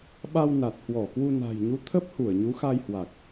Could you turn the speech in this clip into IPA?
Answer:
ɓ a˧ w n a˨˩ t̚ h w ɔ˧˩ k w u˧ n a̤˨˩ j ɲ u˨˦ t̪ʰ ə˦˥ p̚ h u˧˩ ə̯ ɲ u˨˦ x a˧ j h w a˨˩ k̚

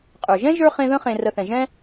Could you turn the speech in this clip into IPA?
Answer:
qʼ ə˞˩ ʒ ɛ̃˥ ʒ ə˞˥ χ ẽ˦ ð ə̃˥ χ ẽ˨ r ə˨ θ ɛ̃˩ ʒ ɛ̃˥

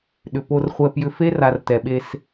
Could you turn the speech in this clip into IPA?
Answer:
ɗ ʏ˨ p o˧ r χʷ ɛ˧ p j ʏ˧ f e˦ r a˨ r t ɛ˨ ɓ e˧ s

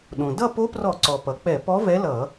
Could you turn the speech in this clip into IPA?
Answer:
ɗ õ˩ d ʌ˥˨ p o˧˥ p r ɔ˧˩˧ ǀ ɔ˩ p ʌ˩ k͡p ɛ˧˩˧ p ɔ˧˥ v ɛ˧˥ l ʌ˧˩˧

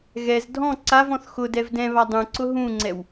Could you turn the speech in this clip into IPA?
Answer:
ɣ ɛ z dʱ ɔ̃ ǀ a v ɔ̃ θ x ʊ d ɛ v d ɛ̃ β a dˤ ũ ǀ ʊ ɦ ũ ŋ͡ǀ ɛ w

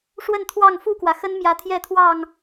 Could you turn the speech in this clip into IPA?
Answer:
ʂ w ə˥˨ n t̪ʰ w ɑ˥˨ ŋ f u˥˨ k w ä˩ x ə˦ n m j ä˨˦ t̪ʰ j ɛ˥˨ t̪ʰ w ɑ˥˨ ŋ

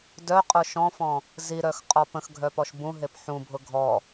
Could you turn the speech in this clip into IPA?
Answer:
d œ qʼ ʊ ʃ ɔ̃ f ɔ̃ | z i ɾ œ x qʼ ɔ p ə̃ x ɡʱ œ p ɔ ʃ b ũ ɦ e p ħ ũ bʱ ʊ ɡʱ ɔ

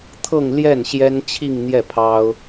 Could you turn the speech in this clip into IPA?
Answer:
t̪ʰ ɤ˥˧ ŋ l j ɛ˥˩ n ɕ j ɛ˥ n t͡ɕʰ i˥˧ ŋ n̪ j ɛ˥˩ pʰ ɑ˥ ʊ̯

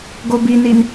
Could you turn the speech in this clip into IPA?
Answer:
ɡ o b i n i n

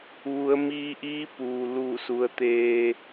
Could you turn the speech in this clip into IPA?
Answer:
ʋ u˩˧ ə̯ m iː˧ ʔ iː˧˥ p uː˩ l uː˧˩ s u˩˧ ə̯ t̪ eː˧

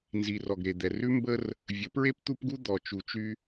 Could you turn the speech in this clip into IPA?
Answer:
n z i˨ r ɔ˨ ɡ ɾ e˨ d̪ ɛ˨ r ʉ˦ m b ə˦ r | vʲ ə˨˦ p ɹ e˦ p t̪ u˦ p ɡ u˦ d̪ ɔ˨ t͡ʃ u˨ t͡ʃ y˦

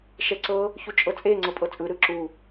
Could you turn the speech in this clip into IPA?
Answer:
ʃ ɛ ǀ ɤ | ç u t͡ʃʼ ɤ t͡sʼ e ŋ͡ǀ ɤ pʼ ɤ t͡sʼ ɯ ɾ ɯ ǁ u

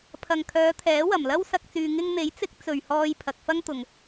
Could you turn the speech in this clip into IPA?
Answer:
pʰ ɐ˨ ŋ kʰ œː˨˧ t̪ʰ ɛː˨˥ w ɐ˨˩ m l ɐ˥ w s ɐ˧ k̚ t͡s yː˧ ŋ ɪ˧ ŋ n̪ e˨˥ j t͡s ɪ˨˥ k̚ t͡s ɵ˨ ɥ h ɔː˧ j pʰ ɐ˨ k̚ f ɐ˥ ŋ t̪ ʊ˨ ŋ

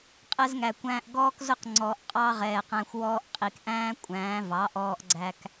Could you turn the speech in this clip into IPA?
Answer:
qʼ ɛ˧ z ŋ æ˨ kʷ æ̃ː˧ ʔ ɡ ɔː˦ k z ʊ˦ q ŋ͡ǀ ɔ˨ ʔ qʼ ɑ˦ ʁ ɛː˨ q æ̃˧ xʷ w ɔː˧ ʔ qʼ i˨ k ʔ æ̃ː˦ kʷʼ æ̃ː˨˦ v ɑ˨˦ ʔ ɔː˧ ʔ ɡ͡ǀ æ˧ k

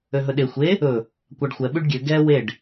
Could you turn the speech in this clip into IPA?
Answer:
ø ɦ ɵ ɗ e xʷ e | ɵ | kʷ ɑ ɖ xʷ ɛ ɓ y ɖ ɡʲ ø ɡ ɛ w e ɖ

